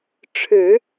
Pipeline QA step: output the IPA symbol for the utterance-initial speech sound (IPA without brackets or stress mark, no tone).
ʈ͡ʂʰ